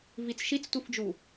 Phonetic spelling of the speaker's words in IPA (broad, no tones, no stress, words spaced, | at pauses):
vit͡sʃit͡stʷifd͡ʒu